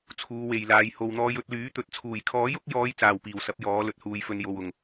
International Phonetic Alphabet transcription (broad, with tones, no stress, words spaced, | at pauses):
t͡sʰuː˨˧we˨jlaː˨˧j ho˨wn̪ɔː˧jɵ˧t̚ lyː˨˥t̪ɵ˨t̚ t͡sʰuː˨˩jkʰɔː˨˥jʊ˨˥k̚jɔː˨˧j t͡saː˨wpiː˨˩wsɐ˨˥p̚ jɔː˨˥lɵ˨t̚huː˧jfɵ˧n jo˨wʊ˨˩ŋ